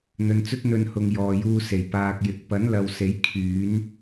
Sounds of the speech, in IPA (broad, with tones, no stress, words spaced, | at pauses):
n̪ɵ˨nt͡sɵ˥t̚ n̪ɵ˧nhʊ˨ŋ jɔː˨juː˧ se˨˩j paː˧k̚jɪ˨˥k̚ pɐ˨˥nlɐ˨w se˨˥j kʰyː˨˥n